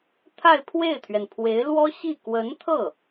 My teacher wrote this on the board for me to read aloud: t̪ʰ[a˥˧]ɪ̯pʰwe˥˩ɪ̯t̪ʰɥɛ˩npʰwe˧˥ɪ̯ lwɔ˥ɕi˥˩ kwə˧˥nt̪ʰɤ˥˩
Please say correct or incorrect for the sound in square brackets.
correct